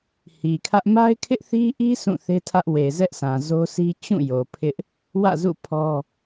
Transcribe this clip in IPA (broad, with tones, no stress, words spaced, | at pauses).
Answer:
hi˨kʰä˦ʔ ma˦ɪ̯kʰɪ˦ʔθi˦ʔi˦ sʰũ˦˨θe˦tʰä˦ʔ we˨zɛ˦ʔsã˨ zo˦si˦ t͡ɕũ˦˨jo˨ pʰɪ˦ʔ | wä̰˦˨zṵ˦˨ pʰɔ˦